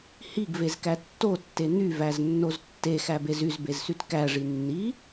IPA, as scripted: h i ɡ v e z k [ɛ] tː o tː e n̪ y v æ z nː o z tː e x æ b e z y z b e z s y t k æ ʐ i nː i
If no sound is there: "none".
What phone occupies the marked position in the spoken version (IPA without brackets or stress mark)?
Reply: æ